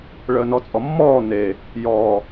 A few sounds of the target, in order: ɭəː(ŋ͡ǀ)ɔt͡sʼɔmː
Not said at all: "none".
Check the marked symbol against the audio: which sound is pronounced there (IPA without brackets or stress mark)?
n